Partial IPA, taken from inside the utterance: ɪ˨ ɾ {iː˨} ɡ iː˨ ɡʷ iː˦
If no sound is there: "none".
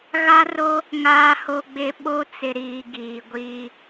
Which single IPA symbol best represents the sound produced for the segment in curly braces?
iː˨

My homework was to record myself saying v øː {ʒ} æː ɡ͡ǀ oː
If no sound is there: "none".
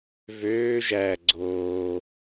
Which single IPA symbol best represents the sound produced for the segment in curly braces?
ʒ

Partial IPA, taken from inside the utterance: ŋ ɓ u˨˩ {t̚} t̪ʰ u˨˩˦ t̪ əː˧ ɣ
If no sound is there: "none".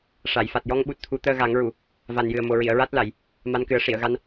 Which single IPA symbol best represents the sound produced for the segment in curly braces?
t̚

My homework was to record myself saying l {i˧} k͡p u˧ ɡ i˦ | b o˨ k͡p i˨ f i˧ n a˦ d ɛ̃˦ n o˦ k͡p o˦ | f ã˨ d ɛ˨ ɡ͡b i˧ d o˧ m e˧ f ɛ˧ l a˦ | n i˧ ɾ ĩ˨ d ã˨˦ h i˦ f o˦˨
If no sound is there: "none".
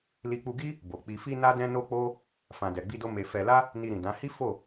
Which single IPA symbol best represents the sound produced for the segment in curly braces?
i˧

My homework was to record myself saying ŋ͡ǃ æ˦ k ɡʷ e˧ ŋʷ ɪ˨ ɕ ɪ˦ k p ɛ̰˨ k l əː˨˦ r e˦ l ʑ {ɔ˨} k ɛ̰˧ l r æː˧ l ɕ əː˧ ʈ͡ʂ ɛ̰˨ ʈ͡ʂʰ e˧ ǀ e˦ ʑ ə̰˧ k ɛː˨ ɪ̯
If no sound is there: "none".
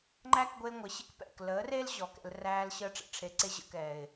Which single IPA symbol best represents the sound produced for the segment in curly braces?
ɔ˨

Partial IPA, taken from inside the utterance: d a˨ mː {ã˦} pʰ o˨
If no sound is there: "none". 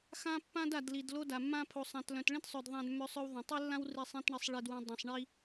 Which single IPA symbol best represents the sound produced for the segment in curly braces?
ã˦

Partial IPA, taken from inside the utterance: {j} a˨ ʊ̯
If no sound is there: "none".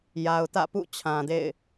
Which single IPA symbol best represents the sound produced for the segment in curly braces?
j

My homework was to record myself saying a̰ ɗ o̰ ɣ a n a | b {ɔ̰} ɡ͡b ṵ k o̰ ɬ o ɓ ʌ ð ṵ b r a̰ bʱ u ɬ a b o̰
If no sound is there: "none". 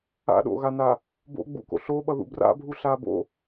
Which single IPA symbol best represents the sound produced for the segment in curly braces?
o̰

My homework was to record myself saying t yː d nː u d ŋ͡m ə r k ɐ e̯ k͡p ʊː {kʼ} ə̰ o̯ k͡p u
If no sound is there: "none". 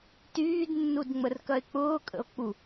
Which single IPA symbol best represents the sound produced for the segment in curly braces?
kʼ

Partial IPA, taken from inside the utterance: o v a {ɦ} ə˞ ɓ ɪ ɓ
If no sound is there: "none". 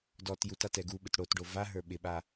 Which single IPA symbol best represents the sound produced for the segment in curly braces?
ɦ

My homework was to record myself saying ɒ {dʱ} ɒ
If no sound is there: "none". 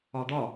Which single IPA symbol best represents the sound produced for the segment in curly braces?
d̪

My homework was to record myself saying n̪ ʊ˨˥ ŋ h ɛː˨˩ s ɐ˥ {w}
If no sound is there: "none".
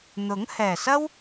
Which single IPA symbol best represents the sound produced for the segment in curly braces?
w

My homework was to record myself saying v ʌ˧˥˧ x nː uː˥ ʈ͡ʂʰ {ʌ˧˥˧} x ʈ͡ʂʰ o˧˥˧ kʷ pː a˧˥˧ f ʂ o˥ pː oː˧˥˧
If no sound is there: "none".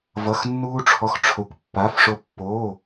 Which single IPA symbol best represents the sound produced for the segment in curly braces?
ɔ˧˥˧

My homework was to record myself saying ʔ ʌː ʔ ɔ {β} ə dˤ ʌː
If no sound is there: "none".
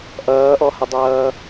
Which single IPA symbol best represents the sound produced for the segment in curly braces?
h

